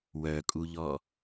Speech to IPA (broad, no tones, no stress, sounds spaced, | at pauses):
w œ kʼ u ʎ ɔ